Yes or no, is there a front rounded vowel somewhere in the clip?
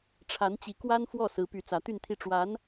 yes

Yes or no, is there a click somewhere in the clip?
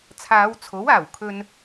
no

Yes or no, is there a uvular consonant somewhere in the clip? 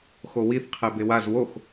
yes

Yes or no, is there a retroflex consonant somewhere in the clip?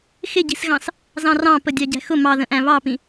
no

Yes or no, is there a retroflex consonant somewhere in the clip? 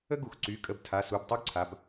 no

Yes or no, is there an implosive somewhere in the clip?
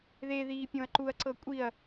no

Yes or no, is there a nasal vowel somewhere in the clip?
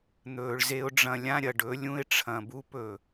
yes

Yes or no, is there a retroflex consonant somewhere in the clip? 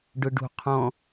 yes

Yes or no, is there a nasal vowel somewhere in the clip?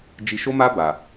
no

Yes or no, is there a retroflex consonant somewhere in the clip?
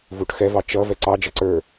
yes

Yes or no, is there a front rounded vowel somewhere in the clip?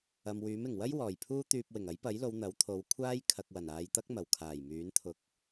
yes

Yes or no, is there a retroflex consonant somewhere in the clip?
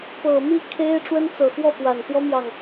yes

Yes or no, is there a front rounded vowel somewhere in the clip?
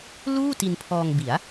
no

